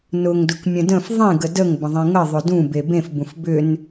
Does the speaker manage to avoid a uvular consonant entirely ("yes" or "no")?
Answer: yes